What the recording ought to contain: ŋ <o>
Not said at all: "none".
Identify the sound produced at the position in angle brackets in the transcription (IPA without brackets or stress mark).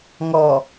ɔ